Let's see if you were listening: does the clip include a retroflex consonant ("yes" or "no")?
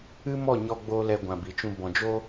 no